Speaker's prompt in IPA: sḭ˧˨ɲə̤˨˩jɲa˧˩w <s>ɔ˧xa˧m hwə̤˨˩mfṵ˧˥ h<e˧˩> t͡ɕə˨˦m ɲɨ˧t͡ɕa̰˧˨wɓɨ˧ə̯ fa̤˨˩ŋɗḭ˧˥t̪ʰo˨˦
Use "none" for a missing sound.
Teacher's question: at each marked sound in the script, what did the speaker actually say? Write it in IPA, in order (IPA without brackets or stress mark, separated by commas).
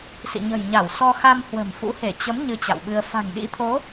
s, e˧˩